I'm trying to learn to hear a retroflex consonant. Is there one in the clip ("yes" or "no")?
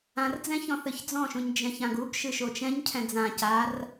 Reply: no